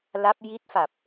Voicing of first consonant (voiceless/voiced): voiced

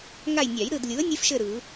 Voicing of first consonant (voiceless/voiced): voiced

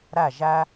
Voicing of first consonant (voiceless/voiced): voiced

